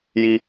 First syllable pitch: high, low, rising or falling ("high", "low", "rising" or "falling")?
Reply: high